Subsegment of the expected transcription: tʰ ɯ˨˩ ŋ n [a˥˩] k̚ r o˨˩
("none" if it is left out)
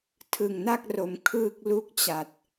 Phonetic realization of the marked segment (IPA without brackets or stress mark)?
a˥˩